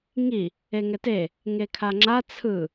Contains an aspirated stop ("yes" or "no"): yes